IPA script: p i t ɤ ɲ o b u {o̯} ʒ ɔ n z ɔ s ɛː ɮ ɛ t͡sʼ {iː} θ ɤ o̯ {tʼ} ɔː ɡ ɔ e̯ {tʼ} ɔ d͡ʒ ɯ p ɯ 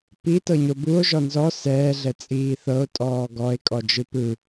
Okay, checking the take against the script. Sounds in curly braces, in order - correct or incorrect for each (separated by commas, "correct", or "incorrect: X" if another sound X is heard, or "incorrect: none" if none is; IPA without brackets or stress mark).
correct, correct, correct, incorrect: kʼ